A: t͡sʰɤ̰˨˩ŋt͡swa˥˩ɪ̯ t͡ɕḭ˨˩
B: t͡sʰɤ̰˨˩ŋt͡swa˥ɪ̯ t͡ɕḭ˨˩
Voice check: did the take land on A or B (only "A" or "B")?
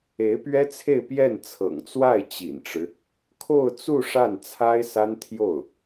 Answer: A